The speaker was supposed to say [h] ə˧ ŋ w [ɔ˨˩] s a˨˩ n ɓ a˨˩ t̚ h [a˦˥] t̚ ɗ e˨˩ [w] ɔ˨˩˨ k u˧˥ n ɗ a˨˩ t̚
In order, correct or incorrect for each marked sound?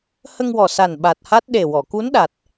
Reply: correct, correct, correct, correct

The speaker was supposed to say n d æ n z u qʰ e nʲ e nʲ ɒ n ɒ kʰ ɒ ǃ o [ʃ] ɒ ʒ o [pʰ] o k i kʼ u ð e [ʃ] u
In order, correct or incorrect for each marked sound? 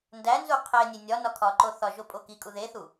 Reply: incorrect, incorrect, incorrect

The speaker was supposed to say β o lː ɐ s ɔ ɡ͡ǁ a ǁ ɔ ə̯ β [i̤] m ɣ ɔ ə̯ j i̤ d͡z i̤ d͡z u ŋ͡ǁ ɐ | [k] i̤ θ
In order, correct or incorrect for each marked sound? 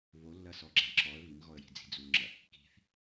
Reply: incorrect, correct

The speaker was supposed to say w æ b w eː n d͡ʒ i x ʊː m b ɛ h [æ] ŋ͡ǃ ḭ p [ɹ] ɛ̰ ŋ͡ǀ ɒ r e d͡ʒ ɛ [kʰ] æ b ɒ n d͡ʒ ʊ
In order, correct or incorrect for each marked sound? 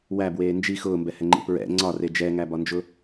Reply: incorrect, correct, incorrect

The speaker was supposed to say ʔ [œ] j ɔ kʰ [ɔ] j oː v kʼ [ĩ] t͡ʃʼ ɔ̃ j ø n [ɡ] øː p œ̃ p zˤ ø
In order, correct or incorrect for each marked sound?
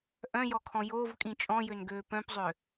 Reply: incorrect, incorrect, correct, correct

